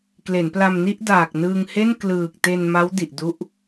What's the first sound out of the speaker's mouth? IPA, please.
k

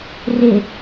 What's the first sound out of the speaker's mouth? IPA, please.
r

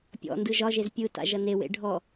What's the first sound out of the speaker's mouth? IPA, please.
pʲ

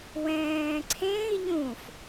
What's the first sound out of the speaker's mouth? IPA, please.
w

